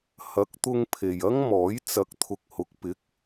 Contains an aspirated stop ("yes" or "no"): yes